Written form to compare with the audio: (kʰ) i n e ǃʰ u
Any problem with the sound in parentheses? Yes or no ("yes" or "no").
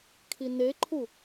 no